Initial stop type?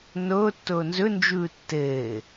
plain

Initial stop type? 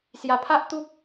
aspirated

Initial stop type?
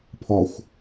aspirated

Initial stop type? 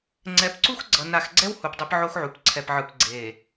click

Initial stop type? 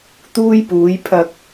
plain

